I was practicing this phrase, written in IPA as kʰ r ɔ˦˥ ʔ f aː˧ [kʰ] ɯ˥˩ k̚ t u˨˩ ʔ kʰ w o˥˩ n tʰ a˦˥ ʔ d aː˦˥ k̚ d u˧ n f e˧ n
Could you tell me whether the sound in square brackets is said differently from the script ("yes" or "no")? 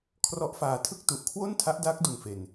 yes